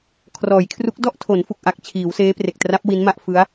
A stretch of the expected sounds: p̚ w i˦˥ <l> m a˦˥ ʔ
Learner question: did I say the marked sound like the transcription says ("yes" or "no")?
no